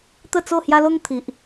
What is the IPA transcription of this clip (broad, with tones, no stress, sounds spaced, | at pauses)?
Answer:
t̪ ə˥˧ t͡s o˥˧ h j a˦ l o˦ ŋ t̪ʰ i˨ ʔ